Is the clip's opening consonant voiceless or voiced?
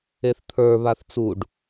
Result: voiceless